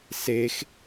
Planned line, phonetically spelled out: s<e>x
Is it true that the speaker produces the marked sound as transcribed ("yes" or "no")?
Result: yes